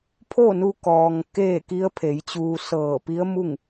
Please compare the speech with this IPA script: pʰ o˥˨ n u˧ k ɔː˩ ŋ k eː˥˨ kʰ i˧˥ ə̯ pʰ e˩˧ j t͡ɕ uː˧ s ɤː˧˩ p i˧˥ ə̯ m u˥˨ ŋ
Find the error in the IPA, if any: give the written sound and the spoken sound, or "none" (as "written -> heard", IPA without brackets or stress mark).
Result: kʰ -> k